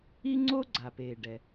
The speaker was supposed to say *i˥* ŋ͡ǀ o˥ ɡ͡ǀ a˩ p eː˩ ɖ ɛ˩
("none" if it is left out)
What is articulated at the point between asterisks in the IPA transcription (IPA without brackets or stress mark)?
i˥